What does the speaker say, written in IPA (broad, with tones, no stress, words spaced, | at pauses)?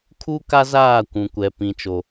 kʰu˦ka˦zaː˦˨ kʷũ˨kʷɛ˨ pĩ˨t͡ʃo˨